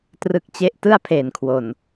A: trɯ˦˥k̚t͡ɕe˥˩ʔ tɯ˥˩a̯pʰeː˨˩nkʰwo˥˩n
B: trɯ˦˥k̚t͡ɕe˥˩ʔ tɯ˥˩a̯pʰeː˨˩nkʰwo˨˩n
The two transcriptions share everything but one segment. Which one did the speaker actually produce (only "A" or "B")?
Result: B